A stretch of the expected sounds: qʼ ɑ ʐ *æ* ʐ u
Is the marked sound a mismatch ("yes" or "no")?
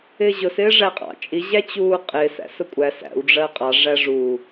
no